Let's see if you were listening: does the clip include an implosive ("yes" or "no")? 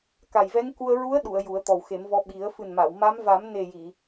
yes